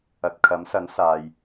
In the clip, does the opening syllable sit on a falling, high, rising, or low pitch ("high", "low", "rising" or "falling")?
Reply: low